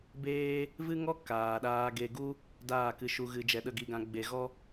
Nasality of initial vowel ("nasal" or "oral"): oral